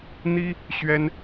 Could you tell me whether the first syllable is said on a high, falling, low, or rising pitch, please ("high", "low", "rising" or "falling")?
high